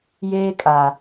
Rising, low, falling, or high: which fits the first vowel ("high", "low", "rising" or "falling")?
high